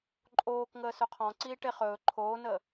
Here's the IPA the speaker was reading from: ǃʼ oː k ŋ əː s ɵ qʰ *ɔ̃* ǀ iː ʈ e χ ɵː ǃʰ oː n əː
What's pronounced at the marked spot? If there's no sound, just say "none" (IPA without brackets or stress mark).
ɔ̃